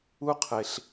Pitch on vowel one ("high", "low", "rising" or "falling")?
high